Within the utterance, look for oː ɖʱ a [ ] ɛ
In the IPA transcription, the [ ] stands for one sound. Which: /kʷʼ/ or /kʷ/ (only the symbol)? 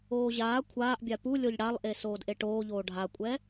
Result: kʷʼ